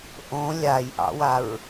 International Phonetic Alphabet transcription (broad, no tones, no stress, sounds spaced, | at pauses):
ʔ õ lʲ a j ʔ ɑ̰ w a ɹ